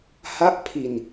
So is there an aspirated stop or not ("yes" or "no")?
yes